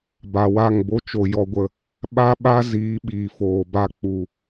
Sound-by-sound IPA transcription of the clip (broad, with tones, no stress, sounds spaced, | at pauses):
b a˨ w a˦˨ ŋ b o˦ t͡ʃ o˨ j ɔ˨ ɡʷ ə˨ | ɓ a˦ ɓ a˦ z iː˨˦ ɓ iː˨ f oː˨ b a˧ k͡p u˨